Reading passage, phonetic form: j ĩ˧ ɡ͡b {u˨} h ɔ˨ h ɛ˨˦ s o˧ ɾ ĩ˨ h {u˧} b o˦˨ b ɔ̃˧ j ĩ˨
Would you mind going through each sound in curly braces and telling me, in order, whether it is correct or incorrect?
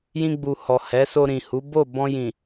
correct, incorrect

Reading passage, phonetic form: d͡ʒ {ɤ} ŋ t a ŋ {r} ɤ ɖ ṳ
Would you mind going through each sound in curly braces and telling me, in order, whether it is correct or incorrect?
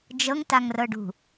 correct, correct

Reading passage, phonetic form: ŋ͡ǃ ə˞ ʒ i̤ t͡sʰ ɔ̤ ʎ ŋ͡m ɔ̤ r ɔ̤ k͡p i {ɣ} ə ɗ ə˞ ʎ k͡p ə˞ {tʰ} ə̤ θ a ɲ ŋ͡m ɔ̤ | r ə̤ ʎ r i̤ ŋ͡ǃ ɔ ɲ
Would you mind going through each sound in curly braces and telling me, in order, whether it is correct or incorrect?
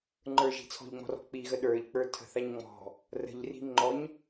correct, correct

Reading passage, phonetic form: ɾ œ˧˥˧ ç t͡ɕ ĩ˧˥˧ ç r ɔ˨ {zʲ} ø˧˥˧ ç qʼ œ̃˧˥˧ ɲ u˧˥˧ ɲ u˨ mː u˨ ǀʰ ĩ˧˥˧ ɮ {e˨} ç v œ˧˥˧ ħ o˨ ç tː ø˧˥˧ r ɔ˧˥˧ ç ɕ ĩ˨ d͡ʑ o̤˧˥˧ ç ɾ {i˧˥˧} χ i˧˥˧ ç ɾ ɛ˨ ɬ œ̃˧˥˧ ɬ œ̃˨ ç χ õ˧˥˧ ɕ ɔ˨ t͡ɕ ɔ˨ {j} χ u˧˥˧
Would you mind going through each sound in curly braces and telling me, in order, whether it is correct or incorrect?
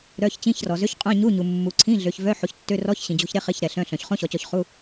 incorrect, incorrect, incorrect, incorrect

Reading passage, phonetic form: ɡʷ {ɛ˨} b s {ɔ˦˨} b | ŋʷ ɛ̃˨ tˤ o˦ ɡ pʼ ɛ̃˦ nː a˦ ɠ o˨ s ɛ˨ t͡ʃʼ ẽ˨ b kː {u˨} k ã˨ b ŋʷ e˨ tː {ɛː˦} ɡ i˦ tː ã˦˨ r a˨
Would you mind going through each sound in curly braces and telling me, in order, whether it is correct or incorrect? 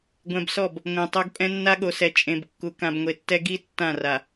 incorrect, correct, correct, incorrect

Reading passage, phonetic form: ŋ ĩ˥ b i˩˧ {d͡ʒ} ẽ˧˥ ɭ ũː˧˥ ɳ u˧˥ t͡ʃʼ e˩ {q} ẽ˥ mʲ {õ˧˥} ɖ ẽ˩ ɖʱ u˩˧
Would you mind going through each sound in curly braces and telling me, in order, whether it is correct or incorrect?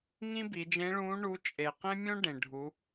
correct, correct, incorrect

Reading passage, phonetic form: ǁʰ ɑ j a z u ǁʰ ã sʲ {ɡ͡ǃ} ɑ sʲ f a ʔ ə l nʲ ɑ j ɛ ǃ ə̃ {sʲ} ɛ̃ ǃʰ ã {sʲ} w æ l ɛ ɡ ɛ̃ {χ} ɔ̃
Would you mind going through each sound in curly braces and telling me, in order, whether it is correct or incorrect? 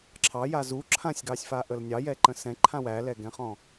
incorrect, incorrect, incorrect, correct

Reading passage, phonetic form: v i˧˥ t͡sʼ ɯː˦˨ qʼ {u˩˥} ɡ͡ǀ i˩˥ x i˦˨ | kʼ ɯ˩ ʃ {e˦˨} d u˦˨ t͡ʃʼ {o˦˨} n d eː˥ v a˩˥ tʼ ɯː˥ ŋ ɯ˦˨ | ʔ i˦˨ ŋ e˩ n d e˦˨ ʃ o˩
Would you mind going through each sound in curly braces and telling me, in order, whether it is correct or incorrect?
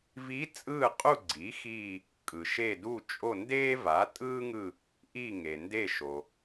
incorrect, correct, correct

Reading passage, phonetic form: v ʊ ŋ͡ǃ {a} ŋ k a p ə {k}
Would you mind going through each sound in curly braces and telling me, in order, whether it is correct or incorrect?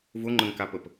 incorrect, incorrect

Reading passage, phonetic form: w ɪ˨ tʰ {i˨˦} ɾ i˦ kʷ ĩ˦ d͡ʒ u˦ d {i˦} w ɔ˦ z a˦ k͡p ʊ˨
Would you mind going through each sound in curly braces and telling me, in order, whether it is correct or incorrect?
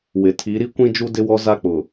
correct, incorrect

